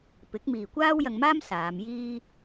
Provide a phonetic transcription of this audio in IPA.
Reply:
pɪ˨˥k̚miː˨kʷaː˥w jɐ˧ŋmaː˥m saː˨˧mjiː˥

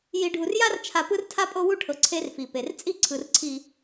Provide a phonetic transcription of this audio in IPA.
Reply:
ji˨ɖʱu˨rja˦rt͡ʃʰa˨ pɯ˦rtʰa˦ pʼo˦wu˦ʈʰɤ˨ ǀʰe˦rfi˨pe˨r t͡sʼi˦ ǀʰɯ˨rǀʰi˨

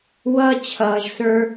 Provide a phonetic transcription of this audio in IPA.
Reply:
wʌː˦t͡ɕʰʌː˨ʒsə˞˦

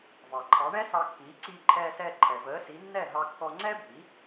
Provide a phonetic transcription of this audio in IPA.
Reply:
vɑ˩ǃʰɑ˩˥ɳɛ˥ sɑ˧kːiː˩˥ ǀiː˧ǃʰɛː˧sɛː˧ ǃʰɛ˩vəː˩˥si˩˥ nːɛ˥˩ɦɑ˧kːɔ˧ ŋ͡ǀɛ˥bʱi˩˥

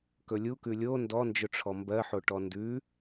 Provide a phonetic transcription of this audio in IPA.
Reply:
kɵlʲukʉ lʲo ndɔnd͡ʒɵʈ͡ʂʰɔ mbɜħo ʈɔndʉ

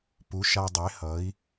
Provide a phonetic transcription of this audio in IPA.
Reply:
pu˩˥ʃa˧dˤe˩˥ hʌ˩˥i̯

